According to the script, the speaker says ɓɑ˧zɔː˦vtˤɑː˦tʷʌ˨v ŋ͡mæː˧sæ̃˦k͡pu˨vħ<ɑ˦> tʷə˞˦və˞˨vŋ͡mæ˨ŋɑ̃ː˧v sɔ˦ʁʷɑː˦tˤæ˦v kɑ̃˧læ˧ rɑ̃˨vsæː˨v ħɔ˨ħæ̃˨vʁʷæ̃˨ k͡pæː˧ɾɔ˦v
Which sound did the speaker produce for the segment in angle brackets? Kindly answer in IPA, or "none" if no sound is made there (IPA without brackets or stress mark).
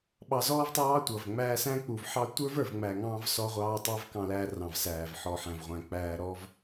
ɑ˦